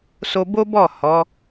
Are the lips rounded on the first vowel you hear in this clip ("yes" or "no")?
yes